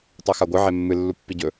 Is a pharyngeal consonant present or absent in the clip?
present